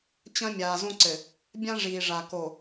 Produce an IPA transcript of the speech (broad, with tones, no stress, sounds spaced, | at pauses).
t͡ɕ ɐ̃˦ mʲ aː˨ z õ˦ ǀ ɘ˨ | bʲ ã˦ ʐ iː˨ ʐ a˨ k o˨